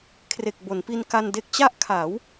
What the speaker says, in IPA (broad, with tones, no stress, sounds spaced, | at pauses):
kʰ r e˨˩ k̚ b o˩˦ n p i˧ n k a˧ n d e˦˥ k̚ t͡ɕ a˥˩ ʔ kʰ a˩˦ w